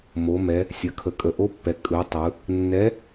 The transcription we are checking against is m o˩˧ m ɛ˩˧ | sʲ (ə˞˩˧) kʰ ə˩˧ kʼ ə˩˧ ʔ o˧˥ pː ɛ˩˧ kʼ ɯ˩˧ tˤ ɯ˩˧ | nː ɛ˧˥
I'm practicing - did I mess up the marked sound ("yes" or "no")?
yes